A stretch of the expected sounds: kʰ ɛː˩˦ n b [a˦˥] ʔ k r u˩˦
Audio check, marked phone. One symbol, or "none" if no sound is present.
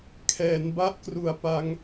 a˦˥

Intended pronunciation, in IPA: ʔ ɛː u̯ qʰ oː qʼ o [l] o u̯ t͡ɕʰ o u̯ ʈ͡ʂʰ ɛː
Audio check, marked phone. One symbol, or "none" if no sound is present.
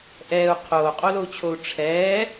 l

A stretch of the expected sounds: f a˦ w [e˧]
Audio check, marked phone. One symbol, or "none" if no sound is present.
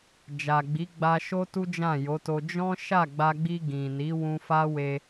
e˧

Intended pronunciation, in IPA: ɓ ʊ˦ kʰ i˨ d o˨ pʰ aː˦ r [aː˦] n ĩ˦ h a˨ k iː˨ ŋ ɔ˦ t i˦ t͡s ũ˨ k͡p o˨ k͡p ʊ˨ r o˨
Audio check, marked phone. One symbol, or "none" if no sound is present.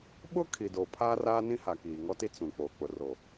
aː˦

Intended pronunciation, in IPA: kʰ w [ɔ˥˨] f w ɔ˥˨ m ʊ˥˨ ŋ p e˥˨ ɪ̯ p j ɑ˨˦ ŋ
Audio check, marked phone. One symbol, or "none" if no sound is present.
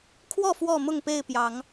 ɔ˥˨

